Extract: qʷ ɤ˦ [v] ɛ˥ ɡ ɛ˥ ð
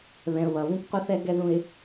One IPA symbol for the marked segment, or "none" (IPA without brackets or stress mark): θ